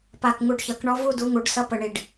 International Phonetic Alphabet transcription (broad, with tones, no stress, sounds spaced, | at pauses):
p a˧˩ k ŋ u˧˩ ɖ ç ʌ˨˩˦ k ɳ ɔ˥ v u˥˧ d u˨˥ ŋ u˨˩˦ ɖ s ʌ˧˥˧ p ə˧˩ ɳ i˧˩ ɖ